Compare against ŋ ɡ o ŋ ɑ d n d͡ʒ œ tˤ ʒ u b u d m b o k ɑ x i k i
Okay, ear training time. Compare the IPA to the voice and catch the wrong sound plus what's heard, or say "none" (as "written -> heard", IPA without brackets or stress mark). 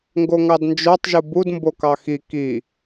none